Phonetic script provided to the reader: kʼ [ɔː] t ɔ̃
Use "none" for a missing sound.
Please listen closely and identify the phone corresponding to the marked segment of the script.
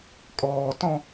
ɔː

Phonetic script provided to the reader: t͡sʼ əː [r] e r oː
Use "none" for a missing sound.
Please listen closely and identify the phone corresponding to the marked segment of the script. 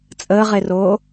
ʁ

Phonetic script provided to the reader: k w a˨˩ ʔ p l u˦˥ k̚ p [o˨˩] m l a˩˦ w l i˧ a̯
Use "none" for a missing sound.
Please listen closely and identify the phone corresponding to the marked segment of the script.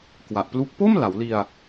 o˥˩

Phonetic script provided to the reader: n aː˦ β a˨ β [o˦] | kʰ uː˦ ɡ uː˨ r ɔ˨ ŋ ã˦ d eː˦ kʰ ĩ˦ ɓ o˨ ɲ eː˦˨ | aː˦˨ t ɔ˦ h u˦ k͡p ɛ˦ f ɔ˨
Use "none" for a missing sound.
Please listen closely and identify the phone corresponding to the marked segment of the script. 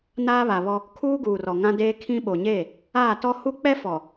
ɔ˦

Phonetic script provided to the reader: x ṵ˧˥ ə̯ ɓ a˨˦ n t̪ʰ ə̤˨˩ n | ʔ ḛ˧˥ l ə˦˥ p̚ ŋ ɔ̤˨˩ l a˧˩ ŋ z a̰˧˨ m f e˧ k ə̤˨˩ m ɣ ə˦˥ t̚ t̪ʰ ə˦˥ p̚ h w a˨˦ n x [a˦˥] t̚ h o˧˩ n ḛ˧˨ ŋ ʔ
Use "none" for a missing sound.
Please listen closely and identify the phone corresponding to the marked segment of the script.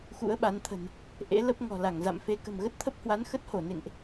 ə˦˥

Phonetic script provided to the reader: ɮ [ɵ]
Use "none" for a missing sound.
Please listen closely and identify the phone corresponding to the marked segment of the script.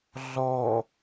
ɔ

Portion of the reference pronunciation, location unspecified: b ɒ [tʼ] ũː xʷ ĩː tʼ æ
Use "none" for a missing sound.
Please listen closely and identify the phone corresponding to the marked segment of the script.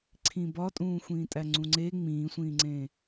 tʼ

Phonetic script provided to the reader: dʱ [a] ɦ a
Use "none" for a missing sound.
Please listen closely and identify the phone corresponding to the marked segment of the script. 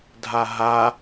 a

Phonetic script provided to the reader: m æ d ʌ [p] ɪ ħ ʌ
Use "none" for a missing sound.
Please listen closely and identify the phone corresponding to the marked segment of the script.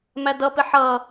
p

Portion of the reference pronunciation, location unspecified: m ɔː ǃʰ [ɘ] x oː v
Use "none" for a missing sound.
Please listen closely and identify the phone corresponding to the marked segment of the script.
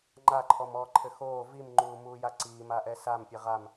ɘ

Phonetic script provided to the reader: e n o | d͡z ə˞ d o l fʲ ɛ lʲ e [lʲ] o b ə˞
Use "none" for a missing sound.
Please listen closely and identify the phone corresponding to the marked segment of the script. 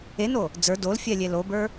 l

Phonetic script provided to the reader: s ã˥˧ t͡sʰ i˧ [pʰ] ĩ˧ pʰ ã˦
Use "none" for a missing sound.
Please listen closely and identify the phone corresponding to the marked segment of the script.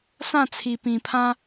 p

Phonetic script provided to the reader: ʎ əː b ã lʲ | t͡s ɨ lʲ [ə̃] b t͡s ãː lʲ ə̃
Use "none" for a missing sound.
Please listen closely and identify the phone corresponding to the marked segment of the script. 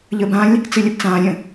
ə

